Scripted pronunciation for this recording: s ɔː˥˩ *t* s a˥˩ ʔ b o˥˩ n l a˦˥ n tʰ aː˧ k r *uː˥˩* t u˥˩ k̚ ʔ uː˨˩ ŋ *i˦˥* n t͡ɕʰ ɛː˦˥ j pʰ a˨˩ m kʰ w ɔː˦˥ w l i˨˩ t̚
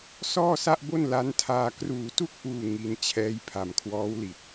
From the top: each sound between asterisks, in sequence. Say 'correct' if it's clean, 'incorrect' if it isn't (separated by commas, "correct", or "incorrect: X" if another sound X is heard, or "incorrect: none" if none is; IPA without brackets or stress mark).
incorrect: none, incorrect: uː˨˩, correct